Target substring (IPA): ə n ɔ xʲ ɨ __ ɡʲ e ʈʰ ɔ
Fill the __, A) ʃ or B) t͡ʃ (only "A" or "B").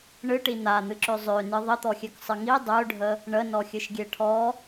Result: A